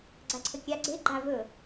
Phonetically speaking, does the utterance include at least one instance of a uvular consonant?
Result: no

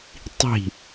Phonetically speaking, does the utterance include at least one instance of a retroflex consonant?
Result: no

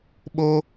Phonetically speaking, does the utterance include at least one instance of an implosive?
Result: yes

